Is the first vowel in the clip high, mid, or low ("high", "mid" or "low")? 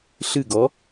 high